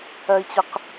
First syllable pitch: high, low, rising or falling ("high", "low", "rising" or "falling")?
high